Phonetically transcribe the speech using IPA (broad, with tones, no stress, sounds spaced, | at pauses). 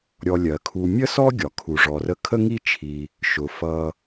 ɾʲ ɔ˨ lʲ ɜ˩ kʰ u˨ mʲ ə˥ s ɔ˥ ɡʲ ɒ˩ kʰ u˨ ʐ ɔ˨ r ə˦ kʰ ə˥ ŋ i˥ t͡ʃʰ i˨ | ʃ ʊ˩ f ʌ˨